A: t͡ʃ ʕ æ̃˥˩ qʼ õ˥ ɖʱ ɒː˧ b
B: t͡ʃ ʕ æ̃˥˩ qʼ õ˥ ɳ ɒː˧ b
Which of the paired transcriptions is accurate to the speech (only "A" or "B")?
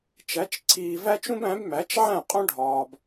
A